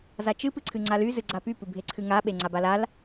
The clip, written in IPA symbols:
zat͡ʃɨ pɨǀʰɨŋ͡ǀaly zɨɡ͡ǀapy pɨbʱeǀʰɨŋa ɓeŋ͡ǀabalal

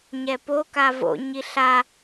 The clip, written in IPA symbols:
ɲɛpo kavo̰ ɲiɬa

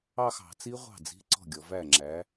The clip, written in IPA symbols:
ɑ˥˧xɑ̤˧˩˧t͡si˦˥ʁʷɑ̤˥˩ d͡zi̤˧˥˧ǀɔ̤˥˩ɡʲɔ˩˧væ˥˩ ŋ͡ǁæ˩˧

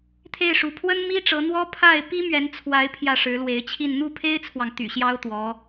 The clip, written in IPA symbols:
t̪ʰe˥˩ɪ̯ʂu˧˥ pʰwə˥nmi˥ʈ͡ʂɤ˧˥ n̪wɔ˥pʰa˥˩ɪ̯ pi˥mɥɛ˧˥nt͡sʰwa˧˥ɪ̯ pʰjä˥˩ʂɻ̩˧˥lwe˧˥ɪ̯t͡ɕʰi˥˧n n̪u˥˩pʰe˥ɪ̯t͡sʰwɑ˨ŋ t̪y̰˨˩ ɕjɑ˥ʊ̯t̪wɔ˧˥

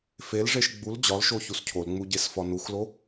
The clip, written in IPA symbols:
felʐeʃ ɡ͡bul d͡ʑɒlʃo çuscʰolŋ͡mu ɟesfɒnuxlo

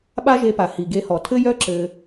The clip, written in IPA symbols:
ɓa˦ʒe˧pa˨ hi˨ɡe˧hɔ˨ tʰɘ˦jœ˦ ǁɘ˧

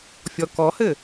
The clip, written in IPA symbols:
fʲɔkɔhɘ

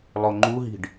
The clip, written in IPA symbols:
lˠoŋ͡ǃuɦi̤ɖ

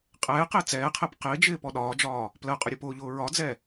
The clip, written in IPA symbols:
qʼɛː qɪːt͡sɛːqʰɛp qɪːd͡ʒɪː pɔɗɒːd͡ʒɒː | plɜqʼʊ ɾʲʊpʊːʎʊː ɹɒd͡zɛ

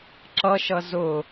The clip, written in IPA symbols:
ǁʌʃʌ zʊ

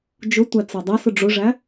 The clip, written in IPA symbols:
d͡ʒʊtʷæt͡sə˞ dˤæsʊ ɖ͡ʐʊʐæ

